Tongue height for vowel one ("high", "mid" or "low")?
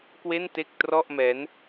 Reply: mid